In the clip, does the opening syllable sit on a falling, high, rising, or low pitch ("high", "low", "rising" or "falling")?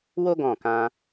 high